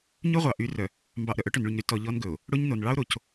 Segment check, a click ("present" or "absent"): absent